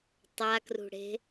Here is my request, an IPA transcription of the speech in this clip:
tˤ a k r ṳ ɽ e̤

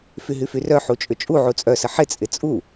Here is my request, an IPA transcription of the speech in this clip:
f y ɦ y f y r œ ħ u t͡ʃʼ ʏ t͡ʃʼ u ʕ u t͡sʼ œ s ə ħ ɪ t͡sʼ ɪ t͡sʼ u

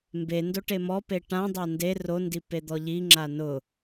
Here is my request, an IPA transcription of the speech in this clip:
m b e n d o ʈ e m ɔ p e ʈ ã dˤ a n d e r o n d i p e d̪ ɔ ʎ i ŋ͡ǁ a n ʊ

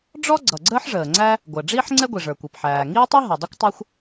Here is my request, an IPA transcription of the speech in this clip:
ɖ͡ʐ ɔ˥ ɡ͡ǀ ʌ˩ ɡ͡ǀ əː˥ ħ ʐ əː˩ ŋ͡ǀ æ˥ | ɡʷ əː˩ ɖ͡ʐ iː˥ ħ ŋ͡ǀ ɛ˥ ɡʷ i˩ ʐ ə˞˩ kʷ i˩ p ħ æː˩ ŋ iː˥ tˤ i˥ ɦ ɔ˩ dˤ i˥ kʷ tˤ a˥ xʷ

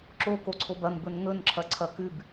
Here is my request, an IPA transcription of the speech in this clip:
ǁ o k o ǀʰ o b ɐ n b ɵ n ŋ ɵ n ǁʰ ɐ ǀʰ ɐ k ʉ b

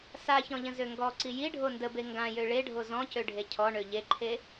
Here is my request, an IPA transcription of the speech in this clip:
s a ç ɔ̃ ʎ ə̃ z ø ŋ ɡ ɔ ǀ i j i ɖʱ o n d ə b e ŋ ɡ ã j ø ɭ e ɖʱ o z ɔ̃ c ø ɖʱ e cʰ ɔ ɳ ø ʎ e ǃʰ e

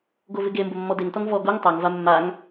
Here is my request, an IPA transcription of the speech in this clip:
ɡ o v ɪ ɡ e m b ʊ mː ɔ d e ŋ t ɔ ŋ v ɔ ɡ o ŋ tˤ a ŋ v a mː a ŋ

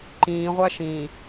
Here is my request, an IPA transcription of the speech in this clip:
ǃ ĩː ʁʷ æ ʃ ĩ

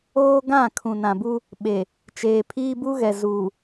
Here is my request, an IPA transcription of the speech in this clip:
oː˦ ɡ ã˦˨ kʰ ũ˨ n ã˨ b u˦ | ɓ e˨ | t͡ʃ eː˨ pʰ iː˦ b u˦ ɣ ɛ˨ z uː˨

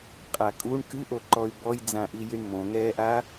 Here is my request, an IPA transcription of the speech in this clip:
qʼ a kʼ u ɳ k ɨ ʔ o ǃ ɔ y̯ b ɔ j d͡z ã ʔ i j i ɳ m õ ŋ ɛː ʔ a

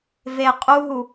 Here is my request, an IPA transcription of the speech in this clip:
v e qʼ u ɦ u

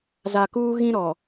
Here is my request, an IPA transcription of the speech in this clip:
z a˨ k uː˦ ɣ ĩ˦ ɾ ɔ˨

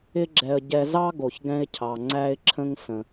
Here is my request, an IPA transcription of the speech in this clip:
ɪ˥ ɡ͡ǁ ɛ˧ ə̯ ɟ ɛ˧ z ɑ˥ ɡ o˩ ç ɡ ɛ̃˧ ɪ̯ cʰ ɑ˩ ŋ͡ǀ æ˧ ɪ̯ ǁʰ ə̃˧ ŋ s ə̃˩

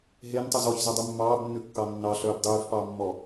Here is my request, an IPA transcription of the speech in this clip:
ɦ e n tˤ ʉ z ɔ ç z ʉ dˤ u mː ɑː b nː ʉ kː ɑ nː ɑ ɬ œː b dˤ yː f p ɑː mː ɔ

